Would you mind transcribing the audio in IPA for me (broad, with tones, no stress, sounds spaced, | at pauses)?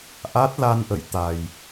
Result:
ʔ a˦˥ t̚ l a˧ n ʔ ə̰˧˨ j t̪ a˨˩ j